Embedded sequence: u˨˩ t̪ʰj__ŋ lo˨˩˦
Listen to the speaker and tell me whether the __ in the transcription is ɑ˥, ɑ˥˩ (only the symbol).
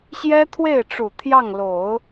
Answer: ɑ˥˩